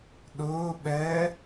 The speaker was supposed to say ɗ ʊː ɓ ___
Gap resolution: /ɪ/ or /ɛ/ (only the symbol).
ɛ